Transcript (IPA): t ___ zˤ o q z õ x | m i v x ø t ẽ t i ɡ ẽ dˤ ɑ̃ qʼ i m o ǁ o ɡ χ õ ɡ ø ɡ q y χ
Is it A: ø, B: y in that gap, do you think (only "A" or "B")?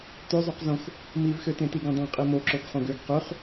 A